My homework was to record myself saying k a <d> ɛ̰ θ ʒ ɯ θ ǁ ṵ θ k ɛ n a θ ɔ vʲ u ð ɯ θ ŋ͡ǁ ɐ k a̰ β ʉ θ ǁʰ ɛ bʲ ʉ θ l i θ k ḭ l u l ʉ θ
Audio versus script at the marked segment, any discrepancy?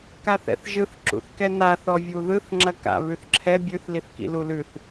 yes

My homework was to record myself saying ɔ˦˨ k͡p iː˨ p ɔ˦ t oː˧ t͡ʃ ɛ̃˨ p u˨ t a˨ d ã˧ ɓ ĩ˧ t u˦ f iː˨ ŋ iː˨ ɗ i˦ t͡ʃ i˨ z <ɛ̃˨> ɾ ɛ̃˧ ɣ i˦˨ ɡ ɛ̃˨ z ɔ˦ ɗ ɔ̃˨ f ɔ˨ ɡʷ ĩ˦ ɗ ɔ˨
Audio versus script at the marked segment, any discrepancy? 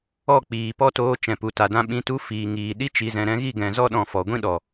no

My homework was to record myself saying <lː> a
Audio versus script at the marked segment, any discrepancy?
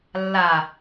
no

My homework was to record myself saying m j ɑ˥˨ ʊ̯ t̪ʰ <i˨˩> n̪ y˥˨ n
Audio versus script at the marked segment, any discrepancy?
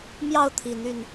no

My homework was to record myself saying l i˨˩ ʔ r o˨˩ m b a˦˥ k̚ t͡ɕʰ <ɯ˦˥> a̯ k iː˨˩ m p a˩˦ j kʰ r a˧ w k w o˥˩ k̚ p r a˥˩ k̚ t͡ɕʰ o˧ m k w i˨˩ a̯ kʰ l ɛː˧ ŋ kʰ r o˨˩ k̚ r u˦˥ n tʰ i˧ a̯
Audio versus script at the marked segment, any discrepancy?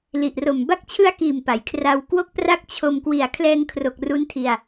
no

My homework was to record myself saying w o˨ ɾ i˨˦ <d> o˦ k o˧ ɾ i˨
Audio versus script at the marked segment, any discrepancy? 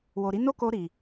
yes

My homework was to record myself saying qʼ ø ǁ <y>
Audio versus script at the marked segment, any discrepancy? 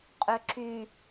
no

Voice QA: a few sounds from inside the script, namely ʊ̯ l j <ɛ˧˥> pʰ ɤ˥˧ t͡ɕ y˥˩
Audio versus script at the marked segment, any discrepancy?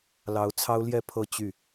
yes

